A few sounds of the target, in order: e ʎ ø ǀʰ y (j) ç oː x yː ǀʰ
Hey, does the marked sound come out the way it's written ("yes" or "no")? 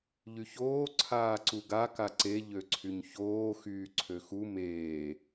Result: no